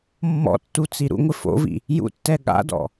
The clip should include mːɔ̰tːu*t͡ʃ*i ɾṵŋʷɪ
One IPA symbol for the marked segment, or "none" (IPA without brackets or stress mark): t͡s